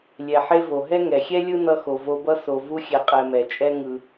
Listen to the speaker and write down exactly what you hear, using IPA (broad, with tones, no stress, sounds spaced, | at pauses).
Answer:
lʲ ɛ˩ ħ e˦ v o˩ ɦ ɛ˥ ŋ ɛ˩ xʲ ɛ˥ lʲ ɯ˦ n ʌ˦ x o˨ v o˦ b ʌ˥ s o˨ v u˦ xʲ ɛ˨ qʼ ɛ˨ m ɛ˩ t͡ʃʼ ɛ˦ ŋ ɯ˨